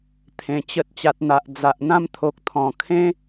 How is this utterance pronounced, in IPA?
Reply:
t̪ʰ ẽ˧ t͡ɕ ə˦ t̚ t͡ɕ a˨ t̚ n̪ a˨ ʔ d͡z a˨ ʔ n̪ ã˧ m t̪ʰ o˨ k̚ t̪ʰ ɔ̃˨˩ kʰ ẽ˦

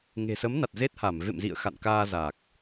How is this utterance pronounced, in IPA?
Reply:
ŋ e̤˨˩ s ə˨˦ m n a˨˩ t̚ z e˦˥ t̚ h a˧˩ m v ḛ˧˨ m z ḭ˧˨ ə̯ x a̰˧˨ n k aː˧ z a˨˩ k̚

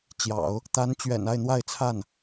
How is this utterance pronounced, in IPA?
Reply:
t͡ɕ j ɑ̰˨˩˦ ʊ̯ | t̪ a˧˥ n t͡ɕ ɥ ɛ̰˨˩ n a˥˧ ɪ̯ n̪ w a˥˧ ɪ̯ t͡sʰ a˥˩ n

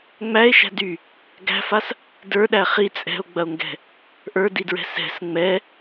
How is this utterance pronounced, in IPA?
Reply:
ŋ͡m æ e̯ ʃ æ̤ d y | ɡ æ̤ f a s | d ə˞ ɗ æ χ i t͡sʼ ɛ̤ o̯ ɡ͡b ɐ o̯ ŋ ɡ ɛ̤ | ʔ ə˞ d i d ɹ ɛ̤ s ɛ̤ s ŋ͡m ɛ

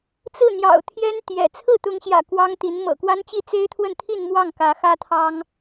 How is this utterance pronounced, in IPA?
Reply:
t͡s ɹ̩˥˩ n̪ j ɑ̰˨˩ ʊ̯ t̪ʰ j ɛ˥ n t̪ j ɛ̰˨˩ t͡sʰ ɹ̩˥˩ t̪ ʊ˧˥ ŋ ɕ j ä̰˨˩ k w ɑ˥ ŋ t̪ i˧˥ n m ɤ̰˨˩ k w a˥ n t͡ɕ i˥˩ t͡s e˥ ɪ̯ t̪ʰ w ə˥˧ n t̪ʰ i˥˧ n m w ɑ˥˩ ŋ k ä˧˥ x ä˥ t̪ʰ ɑ˥ ŋ

